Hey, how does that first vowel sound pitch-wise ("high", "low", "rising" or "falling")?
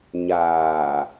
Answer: low